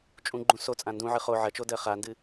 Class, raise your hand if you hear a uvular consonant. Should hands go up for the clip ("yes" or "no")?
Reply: yes